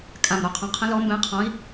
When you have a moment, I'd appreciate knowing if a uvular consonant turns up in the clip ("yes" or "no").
yes